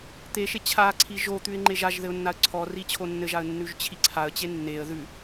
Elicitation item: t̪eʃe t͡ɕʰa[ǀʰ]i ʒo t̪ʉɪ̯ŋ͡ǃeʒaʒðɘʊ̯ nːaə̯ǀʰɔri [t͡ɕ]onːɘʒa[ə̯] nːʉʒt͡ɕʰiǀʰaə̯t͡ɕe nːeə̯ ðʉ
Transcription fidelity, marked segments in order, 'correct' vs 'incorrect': correct, incorrect, correct

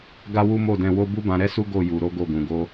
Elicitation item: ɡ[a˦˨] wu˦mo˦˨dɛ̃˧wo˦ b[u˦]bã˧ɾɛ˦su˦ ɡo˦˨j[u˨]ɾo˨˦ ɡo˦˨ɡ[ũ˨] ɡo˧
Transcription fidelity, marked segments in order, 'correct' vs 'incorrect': incorrect, correct, correct, correct

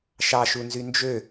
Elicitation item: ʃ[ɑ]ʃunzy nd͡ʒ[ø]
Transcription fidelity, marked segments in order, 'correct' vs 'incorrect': correct, correct

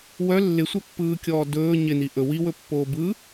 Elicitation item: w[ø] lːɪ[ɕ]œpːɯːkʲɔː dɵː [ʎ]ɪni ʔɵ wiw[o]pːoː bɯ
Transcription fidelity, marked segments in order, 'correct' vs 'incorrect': incorrect, incorrect, incorrect, incorrect

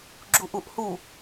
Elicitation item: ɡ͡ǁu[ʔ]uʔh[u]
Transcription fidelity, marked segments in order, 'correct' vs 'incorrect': correct, correct

